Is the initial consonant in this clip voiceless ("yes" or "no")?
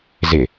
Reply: no